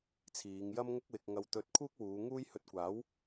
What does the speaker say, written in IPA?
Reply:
t͡sʰ iː˨˧ ŋ j ɐ˥ m ŋ ʊ˥ k̚ w ɪ˧ k̚ ŋ ɐ˧ w t̪ ɵ˧ t̚ kʰ uː˥ k̚ w uː˨˧ ŋ uː˥ j h ɵ˧ t̚ kʷ aː˨˥ w

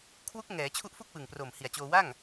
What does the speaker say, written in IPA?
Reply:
kʰ w u˦˥ k̚ ŋ ɛː˩˦ t͡ɕʰ u˦˥ ʔ f u˥˩ k̚ w ɯ˨˩ ŋ p r o˨˩ m h i˨˩ a̯ t͡ɕ oː˧ w a˥˩ ŋ

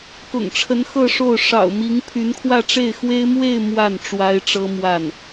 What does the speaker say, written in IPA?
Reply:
k ʊ̰˨˩ ŋ ʈ͡ʂʰ ə˧˥ n x ɤ˥˧ ʂ o˥˩ ʊ̯ ʂ ɑ̰˨˩ ʊ̯ m i˧˥ ŋ pʰ y˧˥ n kʰ w ä˥˧ ʈ͡ʂ e˥˩ ɪ̯ x w e˥ ɪ̯ m w e˥˧ ɪ̯ m w a˥˩ n ʈ͡ʂ w a˥ ɪ̯ ʈ͡ʂ ɤ˥ m w a˥˩ n

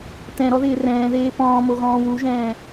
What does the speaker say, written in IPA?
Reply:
t ɛ̃ ɾ ɔ ð ɪː r ɛ̃ː ð eː p ɔ̃ː m o ɣ ɔ̃ː w u ʒ ɛ̃ː

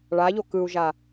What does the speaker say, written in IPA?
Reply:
ɭ a ʎ o k ɯ u̯ ʒ a

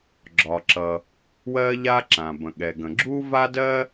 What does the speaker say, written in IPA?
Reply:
ɡ͡ǁ ɒ˩ ǁ ʌ˩ | w ɜ˥ ʎ a˥ ǁ ã˩ b ə̃˩ ɠ ɛ˩ ɡ ə̃˩ ɡ͡ǁ u˥ v a˥ d ɜ˥

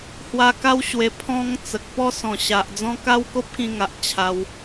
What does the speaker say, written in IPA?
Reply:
h w a˧ k a˦ w ɕ w e˧ pʰ ɔ̃˦ ŋ t͡s ə˨ k̚ p ɔ˥˧ s ɔ̃˨˩ ɕ a˨ ʔ d͡z ɔ̃˦ k a˦ w k o˦ p̚ k ĩ˧ ŋ a˨ ʔ t͡ɕʰ a˧ w

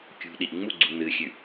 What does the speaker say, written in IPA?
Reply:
kʲ ṳ ɗ i ʔ ŋ͡m u ɡ͡ǀ u n ɨ xʲ ʉ

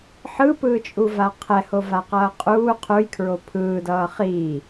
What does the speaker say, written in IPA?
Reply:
ħ ɯ p ɯː t͡ʃʼ u v a qʰ ɛ h o v a q ʌː qʼ uː qʰ u j kʰ ɹ o pʰ ɯː d ʌː χ iː

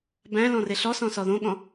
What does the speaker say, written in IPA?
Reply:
b æ̃ l ɔ̃ r e ɬ ɔ s ɔ̃ s ɔ ð õ ɠ ɔ̃

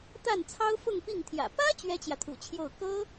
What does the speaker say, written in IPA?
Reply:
t̪ a˥˩ n t͡sʰ ɑ˥ ʊ̯ f ʊ˥˧ ŋ p i˥˩ ŋ t̪ʰ j ä̰˨˩ p ä˥ t͡ɕ ɥ ɛ˥ t͡ɕ j ä˨ t̪ʰ ṵ˨˩ t͡ɕʰ j o˥˩ ʊ̯ k ɤ˥

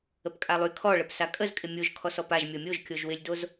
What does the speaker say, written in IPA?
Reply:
ə p kʼ a lˠ y kʰ ɔ ɭ ə p s a kʼ ə z kʼ ɪ mʲ o ʒ kʰ ɔ s ɔ p a ʒ mʲ ɔ mʲ o ʒ kʲ o ʒ w ɪ lʲ d o z

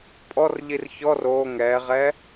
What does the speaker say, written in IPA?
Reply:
pʼ ɔ r ʎ i r ç ɔ r oː ŋ ɛː ʁ ɛ

